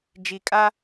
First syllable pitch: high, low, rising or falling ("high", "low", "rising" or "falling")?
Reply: low